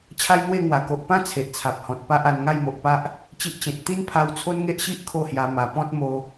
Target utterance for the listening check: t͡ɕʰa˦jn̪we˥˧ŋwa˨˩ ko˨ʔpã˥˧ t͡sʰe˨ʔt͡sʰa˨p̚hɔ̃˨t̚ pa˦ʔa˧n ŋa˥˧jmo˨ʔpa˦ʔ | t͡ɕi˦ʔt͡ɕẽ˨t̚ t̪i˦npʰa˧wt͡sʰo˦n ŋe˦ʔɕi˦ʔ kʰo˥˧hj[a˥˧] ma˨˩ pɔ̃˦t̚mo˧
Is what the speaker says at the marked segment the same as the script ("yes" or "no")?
no